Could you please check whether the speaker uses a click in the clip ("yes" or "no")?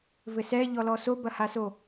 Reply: no